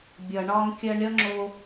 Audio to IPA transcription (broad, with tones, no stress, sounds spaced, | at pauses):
bʲ ʌ˩ ɳ ɒ˧ ŋ kʲ ɜ˧ ɳ ɾʲ ʌ˥ ŋ͡ǁ o˧